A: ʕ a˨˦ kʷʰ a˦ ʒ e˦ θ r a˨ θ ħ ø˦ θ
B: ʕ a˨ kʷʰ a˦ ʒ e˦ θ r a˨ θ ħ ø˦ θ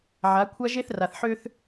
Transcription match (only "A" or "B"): A